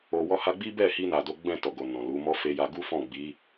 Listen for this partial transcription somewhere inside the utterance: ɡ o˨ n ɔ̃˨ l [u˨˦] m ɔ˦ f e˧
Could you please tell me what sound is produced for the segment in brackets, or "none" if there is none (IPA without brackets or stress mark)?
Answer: u˨˦